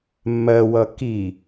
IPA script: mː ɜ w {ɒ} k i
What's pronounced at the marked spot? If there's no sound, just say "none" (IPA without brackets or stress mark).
ʌ